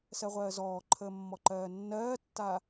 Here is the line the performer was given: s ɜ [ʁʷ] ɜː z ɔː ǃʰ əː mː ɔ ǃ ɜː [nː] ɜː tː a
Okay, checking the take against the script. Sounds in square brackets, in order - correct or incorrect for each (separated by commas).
correct, correct